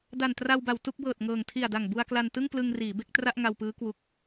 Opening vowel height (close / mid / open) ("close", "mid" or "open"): open